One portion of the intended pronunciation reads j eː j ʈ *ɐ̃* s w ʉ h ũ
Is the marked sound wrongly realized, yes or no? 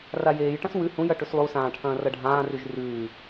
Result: no